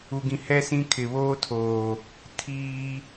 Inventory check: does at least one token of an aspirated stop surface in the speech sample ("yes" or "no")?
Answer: yes